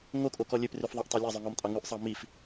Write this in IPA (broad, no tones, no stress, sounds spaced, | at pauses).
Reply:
ŋ o kʼ o k ɔ lʲ ø p r ʉ f ðˤ ɑ ʔ tˤ œ lʲ ɑ zˤ ø ŋ ɔ m tʼ ɑ ŋ ʉ ʔ sˤ ɑ m i f